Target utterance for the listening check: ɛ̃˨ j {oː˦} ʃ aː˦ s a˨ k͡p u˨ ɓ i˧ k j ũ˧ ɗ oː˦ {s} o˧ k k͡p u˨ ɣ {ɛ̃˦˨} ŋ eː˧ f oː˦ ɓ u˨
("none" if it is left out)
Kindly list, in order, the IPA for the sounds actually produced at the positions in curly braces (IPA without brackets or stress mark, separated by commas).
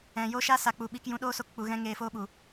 oː˦, s, ɛ̃˦